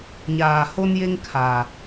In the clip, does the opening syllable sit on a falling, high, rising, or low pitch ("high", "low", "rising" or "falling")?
low